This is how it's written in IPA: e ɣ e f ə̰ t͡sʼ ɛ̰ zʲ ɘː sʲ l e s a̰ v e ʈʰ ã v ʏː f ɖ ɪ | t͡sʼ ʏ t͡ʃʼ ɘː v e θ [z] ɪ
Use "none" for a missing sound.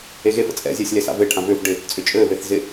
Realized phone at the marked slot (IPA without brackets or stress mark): z